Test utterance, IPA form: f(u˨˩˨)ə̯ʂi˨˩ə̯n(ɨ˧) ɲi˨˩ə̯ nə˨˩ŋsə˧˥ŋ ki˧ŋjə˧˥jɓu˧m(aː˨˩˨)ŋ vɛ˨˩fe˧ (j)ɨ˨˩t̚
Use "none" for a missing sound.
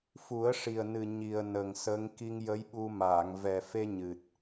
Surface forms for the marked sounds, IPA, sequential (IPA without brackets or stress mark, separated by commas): u˨˩˦, ɨ˨˩, aː˨˩˨, ɲ